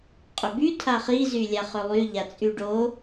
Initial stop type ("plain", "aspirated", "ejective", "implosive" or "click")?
ejective